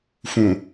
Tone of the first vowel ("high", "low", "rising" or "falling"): low